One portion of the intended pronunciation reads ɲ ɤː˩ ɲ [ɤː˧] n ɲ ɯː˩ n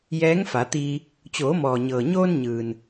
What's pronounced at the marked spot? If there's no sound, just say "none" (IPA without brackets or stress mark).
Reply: oː˧